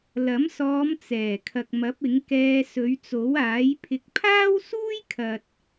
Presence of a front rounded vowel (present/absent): absent